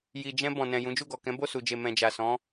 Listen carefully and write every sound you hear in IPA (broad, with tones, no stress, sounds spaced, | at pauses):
j i˨ d͡ʒ ɛ̃˧ b ɔ̃˨ n ɛ̃˨ j ũ˨˦ d͡ʒ u˦˨ ɡ ɔ˨ k ɛ̃˨˦ b o˦˨ s u˨ d͡ʒ e˨ m ɛ̃˨ d͡ʒ a˨ s ɔ̃˨˦